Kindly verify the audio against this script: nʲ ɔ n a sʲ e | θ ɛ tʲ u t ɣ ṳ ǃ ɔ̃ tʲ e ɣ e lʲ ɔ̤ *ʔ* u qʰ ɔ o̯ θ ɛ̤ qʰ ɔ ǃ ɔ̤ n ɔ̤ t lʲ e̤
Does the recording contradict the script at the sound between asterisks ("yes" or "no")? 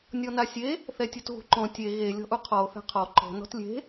no